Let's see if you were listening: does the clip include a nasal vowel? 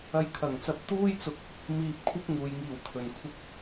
no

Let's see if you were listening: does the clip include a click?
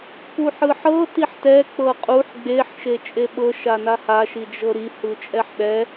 no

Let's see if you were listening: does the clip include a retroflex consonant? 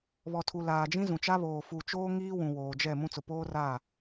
no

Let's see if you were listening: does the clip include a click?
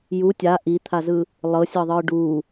no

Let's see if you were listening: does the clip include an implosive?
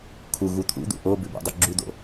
no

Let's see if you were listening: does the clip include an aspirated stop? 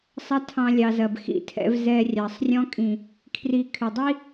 yes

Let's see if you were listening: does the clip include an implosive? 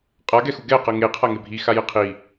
no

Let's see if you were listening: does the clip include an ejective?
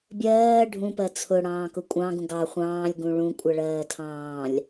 yes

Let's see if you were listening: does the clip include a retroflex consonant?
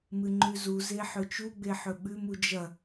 no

